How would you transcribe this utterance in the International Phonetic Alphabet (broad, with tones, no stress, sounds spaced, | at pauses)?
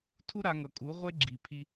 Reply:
tʰ u˦ ɾ a˧ ŋ ʌ˨ kʼ u˨˦ ʁʷ e˦ ɡ͡ǁ i˨ pʰ i˧